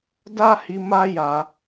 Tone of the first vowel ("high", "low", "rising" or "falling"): high